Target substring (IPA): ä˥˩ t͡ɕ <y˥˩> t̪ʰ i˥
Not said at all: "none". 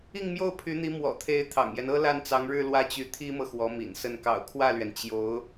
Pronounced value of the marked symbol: y˧˥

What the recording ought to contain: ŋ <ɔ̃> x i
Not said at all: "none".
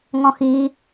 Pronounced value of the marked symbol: ɔ̃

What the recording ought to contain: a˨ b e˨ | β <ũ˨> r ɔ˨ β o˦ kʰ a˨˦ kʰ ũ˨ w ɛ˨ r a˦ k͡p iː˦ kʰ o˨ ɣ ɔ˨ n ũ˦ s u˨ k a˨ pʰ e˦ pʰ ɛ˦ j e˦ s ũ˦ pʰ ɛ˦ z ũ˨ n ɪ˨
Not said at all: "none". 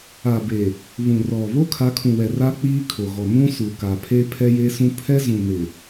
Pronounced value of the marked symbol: ũ˨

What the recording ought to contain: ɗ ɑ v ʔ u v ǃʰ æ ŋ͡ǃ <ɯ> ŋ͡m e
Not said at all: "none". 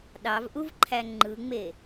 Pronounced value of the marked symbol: ɯ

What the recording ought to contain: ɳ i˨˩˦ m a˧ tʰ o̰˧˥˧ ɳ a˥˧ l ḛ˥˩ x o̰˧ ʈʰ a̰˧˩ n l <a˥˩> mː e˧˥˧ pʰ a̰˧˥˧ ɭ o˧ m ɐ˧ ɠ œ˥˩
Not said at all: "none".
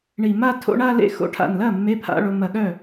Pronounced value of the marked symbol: ɐ˥˩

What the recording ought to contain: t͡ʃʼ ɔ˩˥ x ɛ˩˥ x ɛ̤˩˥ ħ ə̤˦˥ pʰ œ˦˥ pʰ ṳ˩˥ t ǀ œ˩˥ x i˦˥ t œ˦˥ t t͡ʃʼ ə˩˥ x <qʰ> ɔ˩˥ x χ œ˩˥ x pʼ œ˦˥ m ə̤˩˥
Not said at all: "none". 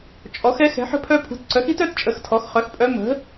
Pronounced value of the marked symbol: tʰ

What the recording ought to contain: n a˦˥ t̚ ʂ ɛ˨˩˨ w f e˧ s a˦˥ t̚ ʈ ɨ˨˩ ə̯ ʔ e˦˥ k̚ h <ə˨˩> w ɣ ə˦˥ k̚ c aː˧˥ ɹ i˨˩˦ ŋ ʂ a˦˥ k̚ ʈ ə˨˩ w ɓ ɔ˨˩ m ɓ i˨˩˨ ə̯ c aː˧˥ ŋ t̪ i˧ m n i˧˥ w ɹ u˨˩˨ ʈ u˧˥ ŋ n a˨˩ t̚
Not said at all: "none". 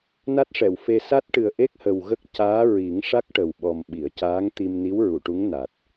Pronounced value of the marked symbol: ə˨˩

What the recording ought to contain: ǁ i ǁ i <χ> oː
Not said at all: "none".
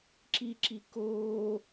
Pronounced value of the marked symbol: k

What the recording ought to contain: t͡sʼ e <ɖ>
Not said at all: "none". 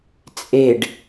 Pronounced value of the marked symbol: ɖ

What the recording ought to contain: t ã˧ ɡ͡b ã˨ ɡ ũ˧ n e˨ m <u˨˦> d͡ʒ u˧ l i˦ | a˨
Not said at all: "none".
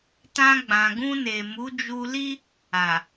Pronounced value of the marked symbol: u˨˦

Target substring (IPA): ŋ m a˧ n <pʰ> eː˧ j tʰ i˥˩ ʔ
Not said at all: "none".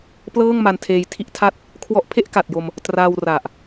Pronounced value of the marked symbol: tʰ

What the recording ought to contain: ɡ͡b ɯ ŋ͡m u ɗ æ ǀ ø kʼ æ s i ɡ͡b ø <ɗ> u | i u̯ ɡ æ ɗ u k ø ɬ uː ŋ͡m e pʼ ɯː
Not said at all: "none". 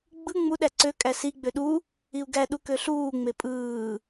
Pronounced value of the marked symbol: ɗ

